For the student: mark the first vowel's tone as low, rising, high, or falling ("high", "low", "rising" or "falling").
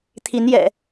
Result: rising